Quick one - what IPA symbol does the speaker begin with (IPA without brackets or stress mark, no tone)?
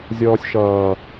zʲ